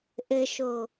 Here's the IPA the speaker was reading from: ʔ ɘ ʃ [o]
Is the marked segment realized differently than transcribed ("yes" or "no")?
no